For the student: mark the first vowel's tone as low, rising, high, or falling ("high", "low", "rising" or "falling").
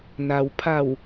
low